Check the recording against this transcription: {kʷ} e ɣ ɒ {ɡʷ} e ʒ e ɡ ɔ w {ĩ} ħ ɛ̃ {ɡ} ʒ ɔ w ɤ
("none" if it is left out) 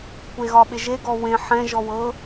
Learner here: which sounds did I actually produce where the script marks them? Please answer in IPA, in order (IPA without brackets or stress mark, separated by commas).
kʷ, ɓ, ẽ, none